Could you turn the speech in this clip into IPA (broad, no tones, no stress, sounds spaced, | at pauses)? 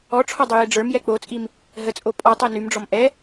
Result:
ɔ ʈ͡ʂʰ ɔ dˤ ø j e ɖ͡ʐ ə˞ m j ɛ k͡p o t͡sʼ i m | ɦ ə t͡sʼ o pʼ ɔ tˤ e n y m ɖ͡ʐ ɔ m ʔ ɛ